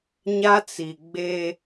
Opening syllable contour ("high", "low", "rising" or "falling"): high